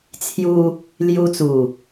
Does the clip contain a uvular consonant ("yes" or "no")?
no